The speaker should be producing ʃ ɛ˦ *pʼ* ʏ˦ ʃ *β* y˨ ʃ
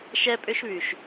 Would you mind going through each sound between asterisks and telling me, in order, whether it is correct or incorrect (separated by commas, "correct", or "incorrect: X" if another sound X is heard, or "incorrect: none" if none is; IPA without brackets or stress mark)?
correct, correct